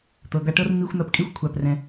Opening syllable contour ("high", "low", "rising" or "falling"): low